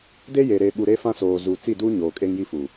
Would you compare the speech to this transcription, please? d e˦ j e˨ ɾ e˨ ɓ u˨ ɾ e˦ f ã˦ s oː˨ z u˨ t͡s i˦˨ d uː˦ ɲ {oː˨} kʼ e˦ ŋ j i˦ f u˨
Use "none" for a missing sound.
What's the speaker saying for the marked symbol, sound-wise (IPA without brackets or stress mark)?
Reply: oː˨